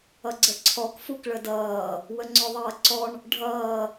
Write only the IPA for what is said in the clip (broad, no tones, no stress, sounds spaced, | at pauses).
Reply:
ʌ ɡ͡ǀ ə ǀʰ ɔ k f u k ɭ ə d ʌː | w ə ŋ͡ǀ ɔ ðˤ ʌː ǀ ɔ ɳ | ɖʱ ʌː